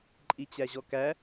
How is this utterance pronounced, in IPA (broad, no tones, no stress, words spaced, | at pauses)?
ǃʼit͡ɕæʑɔkæ